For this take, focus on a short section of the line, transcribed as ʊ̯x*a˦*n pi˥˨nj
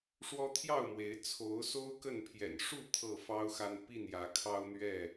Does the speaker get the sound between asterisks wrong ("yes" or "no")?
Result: no